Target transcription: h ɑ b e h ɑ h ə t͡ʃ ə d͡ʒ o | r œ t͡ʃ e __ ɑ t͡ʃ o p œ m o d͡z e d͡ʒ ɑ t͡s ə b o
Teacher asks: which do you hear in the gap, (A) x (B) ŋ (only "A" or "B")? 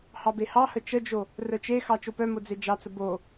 A